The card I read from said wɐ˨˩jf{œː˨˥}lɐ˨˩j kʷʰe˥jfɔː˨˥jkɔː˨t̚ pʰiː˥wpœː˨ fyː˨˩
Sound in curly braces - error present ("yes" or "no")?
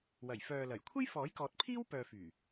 yes